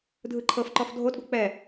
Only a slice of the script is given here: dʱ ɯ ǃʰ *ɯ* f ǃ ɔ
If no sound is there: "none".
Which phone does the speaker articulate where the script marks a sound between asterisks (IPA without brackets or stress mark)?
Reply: ɤ